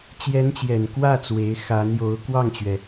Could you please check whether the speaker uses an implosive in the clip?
no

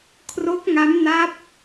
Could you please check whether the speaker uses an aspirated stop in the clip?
yes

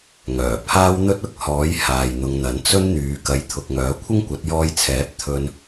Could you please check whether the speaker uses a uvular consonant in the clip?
no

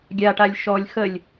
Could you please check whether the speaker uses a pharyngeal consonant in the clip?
no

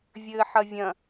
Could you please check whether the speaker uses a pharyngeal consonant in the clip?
yes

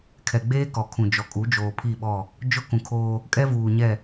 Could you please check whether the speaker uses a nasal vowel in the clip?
yes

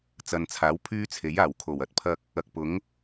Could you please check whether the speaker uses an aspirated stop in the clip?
yes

